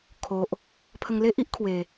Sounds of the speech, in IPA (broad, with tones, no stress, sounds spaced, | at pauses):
kʰ o˨ ʔ | pʰ ə˧ ŋ l e˦ ʔ i˦ ʔ kʰ w e˨˩